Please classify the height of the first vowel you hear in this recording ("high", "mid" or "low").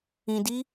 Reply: high